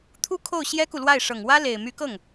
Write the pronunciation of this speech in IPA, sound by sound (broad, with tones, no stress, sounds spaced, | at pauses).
t̪ʰ u˥ kʰ o˥˩ ʊ̯ ɕ j ɛ˥ k u˨ l w a˥˩ ɪ̯ ʂ ɤ˨˩ ŋ w ä˥ l e˨˩ ɪ̯ m y˧˥ k ɤ˥˩ ŋ